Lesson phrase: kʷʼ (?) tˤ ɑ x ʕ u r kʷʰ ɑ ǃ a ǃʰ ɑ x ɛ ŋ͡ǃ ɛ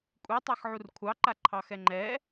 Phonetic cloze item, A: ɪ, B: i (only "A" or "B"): B